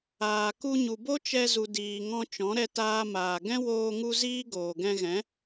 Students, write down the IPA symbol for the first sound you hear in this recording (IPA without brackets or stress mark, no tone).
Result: aː